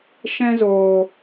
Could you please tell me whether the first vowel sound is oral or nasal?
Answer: nasal